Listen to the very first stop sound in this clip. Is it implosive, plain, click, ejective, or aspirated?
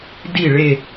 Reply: plain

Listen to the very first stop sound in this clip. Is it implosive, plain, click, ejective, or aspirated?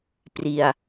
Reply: plain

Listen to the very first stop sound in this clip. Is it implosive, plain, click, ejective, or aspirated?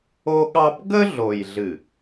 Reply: implosive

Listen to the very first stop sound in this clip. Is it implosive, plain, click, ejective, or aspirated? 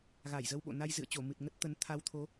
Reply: implosive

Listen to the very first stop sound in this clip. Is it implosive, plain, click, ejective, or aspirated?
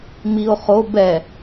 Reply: plain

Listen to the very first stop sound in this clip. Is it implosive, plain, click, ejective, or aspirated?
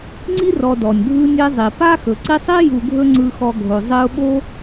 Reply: click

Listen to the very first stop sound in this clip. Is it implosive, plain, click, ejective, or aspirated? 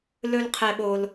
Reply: aspirated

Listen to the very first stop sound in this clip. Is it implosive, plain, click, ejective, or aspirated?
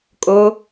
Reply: ejective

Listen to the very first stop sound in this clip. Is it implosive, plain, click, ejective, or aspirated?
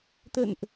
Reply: plain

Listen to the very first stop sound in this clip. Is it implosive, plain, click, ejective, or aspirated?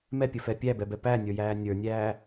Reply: plain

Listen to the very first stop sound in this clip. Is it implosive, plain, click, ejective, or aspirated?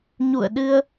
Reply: implosive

